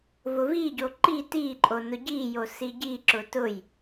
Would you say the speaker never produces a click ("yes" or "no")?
no